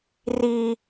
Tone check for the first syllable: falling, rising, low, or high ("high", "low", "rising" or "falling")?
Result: high